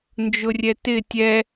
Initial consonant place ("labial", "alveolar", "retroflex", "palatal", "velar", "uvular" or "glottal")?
alveolar